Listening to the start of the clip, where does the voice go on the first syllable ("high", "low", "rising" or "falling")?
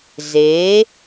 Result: rising